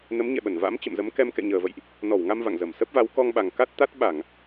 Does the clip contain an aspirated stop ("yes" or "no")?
no